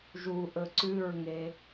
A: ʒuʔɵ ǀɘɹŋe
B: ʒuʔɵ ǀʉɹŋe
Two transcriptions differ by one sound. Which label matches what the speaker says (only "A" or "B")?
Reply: B